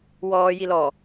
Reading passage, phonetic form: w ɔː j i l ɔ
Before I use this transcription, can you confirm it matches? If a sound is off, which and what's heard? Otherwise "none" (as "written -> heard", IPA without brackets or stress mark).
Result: none